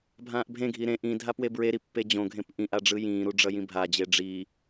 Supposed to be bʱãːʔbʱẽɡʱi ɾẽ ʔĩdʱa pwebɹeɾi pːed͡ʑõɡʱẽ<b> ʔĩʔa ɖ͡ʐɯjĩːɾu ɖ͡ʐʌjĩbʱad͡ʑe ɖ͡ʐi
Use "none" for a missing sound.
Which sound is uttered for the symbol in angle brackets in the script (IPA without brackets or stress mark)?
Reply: p